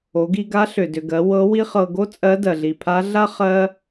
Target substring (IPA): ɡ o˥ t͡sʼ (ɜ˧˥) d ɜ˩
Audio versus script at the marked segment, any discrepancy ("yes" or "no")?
no